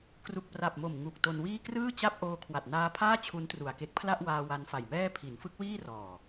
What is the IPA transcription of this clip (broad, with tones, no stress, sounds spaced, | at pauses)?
k r u˨˩ k̚ p r a˨˩ p̚ m o˨˩ m ŋ u˨˩ k̚ t o˧ n w iː˥˩ k r ɯː˥˩ t͡ɕ a˥˩ p̚ ʔ oː˧ kʰ w a˨˩ t̚ n aː˦˥ pʰ aː˥˩ t͡ɕʰ u˦˥ n t r u˨˩ a̯ k e˦˥ k̚ pʰ l a˥˩ ʔ w aː˧ w a˧ n f a˨˩ j m ɛː˥˩ pʰ i˩˦ n f ɯ˦˥ k̚ w iː˥˩ r ɔː˨˩